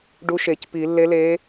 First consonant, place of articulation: retroflex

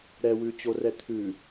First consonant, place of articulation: alveolar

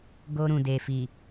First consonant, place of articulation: velar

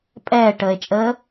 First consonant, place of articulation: labial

